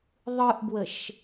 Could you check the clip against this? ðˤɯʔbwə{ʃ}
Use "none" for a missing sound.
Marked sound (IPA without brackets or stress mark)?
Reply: ʃ